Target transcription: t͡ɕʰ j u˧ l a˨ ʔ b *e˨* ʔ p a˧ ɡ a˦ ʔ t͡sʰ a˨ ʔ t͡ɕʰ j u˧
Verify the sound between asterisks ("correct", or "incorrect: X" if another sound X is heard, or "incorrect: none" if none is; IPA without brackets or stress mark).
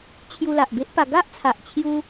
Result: incorrect: e˦